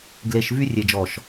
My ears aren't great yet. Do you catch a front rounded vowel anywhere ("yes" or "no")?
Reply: yes